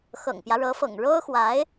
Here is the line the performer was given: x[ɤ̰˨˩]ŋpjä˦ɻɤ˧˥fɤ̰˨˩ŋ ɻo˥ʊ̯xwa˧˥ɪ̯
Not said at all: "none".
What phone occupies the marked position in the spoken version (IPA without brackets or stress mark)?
ɤ̰˨˩